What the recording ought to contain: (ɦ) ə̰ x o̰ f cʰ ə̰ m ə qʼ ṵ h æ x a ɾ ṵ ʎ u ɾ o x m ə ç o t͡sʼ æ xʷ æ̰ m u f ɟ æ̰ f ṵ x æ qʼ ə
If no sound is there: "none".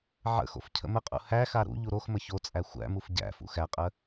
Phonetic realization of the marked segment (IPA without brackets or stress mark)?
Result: ʕ